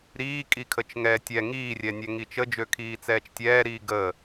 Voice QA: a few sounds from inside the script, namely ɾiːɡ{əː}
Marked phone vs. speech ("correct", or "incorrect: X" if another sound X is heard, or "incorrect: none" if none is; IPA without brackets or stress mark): correct